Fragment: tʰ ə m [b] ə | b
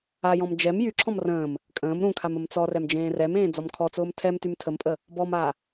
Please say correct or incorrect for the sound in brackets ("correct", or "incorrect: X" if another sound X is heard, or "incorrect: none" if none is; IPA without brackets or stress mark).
incorrect: pʼ